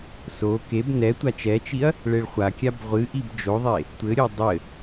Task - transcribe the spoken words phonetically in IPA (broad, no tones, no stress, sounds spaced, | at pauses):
s o k e b n ɛ tʷ a t͡ʃ ɛ t͡ʃ i ɐ̯ | ɭ e ɭ χʷ a kʲ a b ʁʷ ɨ ʔ i b d͡ʒ o ðˤ e | tʷ ɘ ɾʲ o dˤ ɘ